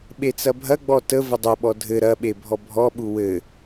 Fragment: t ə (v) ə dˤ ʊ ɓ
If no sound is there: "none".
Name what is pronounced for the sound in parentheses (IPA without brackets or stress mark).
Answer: v